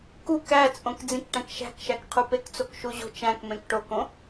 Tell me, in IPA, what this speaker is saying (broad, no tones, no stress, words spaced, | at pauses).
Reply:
kuk æt͡sʼõk d͡zĩkʈæ̃kʃæ̤kʃæk qʰupekt͡sok ʃuʑo̤t͡ʃæ̃kmẽk ʈokõ